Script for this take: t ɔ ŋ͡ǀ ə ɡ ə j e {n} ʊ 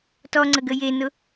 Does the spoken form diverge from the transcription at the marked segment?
no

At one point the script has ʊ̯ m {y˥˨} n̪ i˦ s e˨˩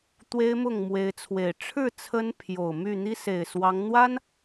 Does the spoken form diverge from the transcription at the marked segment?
no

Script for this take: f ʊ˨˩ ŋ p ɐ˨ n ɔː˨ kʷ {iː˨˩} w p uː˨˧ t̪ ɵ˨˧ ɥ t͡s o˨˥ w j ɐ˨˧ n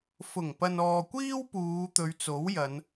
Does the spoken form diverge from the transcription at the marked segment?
yes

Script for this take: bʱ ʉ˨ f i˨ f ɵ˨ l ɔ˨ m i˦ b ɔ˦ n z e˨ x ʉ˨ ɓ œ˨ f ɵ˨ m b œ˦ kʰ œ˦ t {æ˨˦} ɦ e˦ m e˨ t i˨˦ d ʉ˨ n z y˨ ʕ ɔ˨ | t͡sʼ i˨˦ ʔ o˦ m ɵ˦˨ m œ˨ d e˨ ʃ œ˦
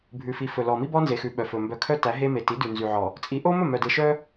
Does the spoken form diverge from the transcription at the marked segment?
no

